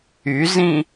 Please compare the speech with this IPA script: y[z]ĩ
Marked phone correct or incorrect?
correct